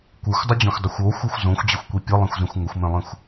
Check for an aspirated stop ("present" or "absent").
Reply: absent